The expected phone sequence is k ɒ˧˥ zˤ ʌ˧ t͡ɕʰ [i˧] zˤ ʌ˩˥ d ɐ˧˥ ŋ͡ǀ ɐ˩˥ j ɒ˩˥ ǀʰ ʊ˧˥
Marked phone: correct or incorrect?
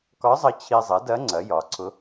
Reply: correct